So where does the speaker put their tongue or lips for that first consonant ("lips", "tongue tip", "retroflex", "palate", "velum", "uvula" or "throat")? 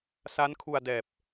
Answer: tongue tip